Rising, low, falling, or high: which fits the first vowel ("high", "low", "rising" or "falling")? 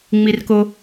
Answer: low